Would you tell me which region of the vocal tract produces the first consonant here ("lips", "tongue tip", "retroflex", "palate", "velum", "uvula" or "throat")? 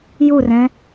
palate